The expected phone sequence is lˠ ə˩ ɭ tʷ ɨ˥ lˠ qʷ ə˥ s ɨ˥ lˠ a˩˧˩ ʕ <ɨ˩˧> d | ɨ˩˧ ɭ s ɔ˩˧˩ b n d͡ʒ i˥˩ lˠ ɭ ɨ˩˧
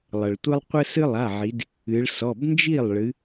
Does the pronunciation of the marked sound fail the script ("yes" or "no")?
yes